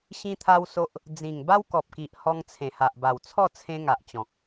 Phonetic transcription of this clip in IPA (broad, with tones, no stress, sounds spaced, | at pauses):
ɕ ĩ˦ t̪ʰ a˦ w s o˦ ʔ | d͡z ĩ˨˩ ŋ b a˦ w k ɔ˨ p̚ k i˨ ʔ h ɔ˧ ŋ t͡sʰ ẽ˨˩ h a˨ ʔ b a˨˩ w t͡sʰ ɔ˥˧ t͡sʰ ẽ˧ ŋ a˨ ʔ t͡ɕ ɔ̃˨ k̚